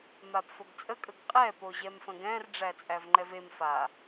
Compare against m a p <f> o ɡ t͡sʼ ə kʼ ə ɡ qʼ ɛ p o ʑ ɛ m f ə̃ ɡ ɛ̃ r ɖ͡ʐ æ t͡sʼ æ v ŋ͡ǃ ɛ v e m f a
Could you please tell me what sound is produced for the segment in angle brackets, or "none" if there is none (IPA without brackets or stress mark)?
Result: f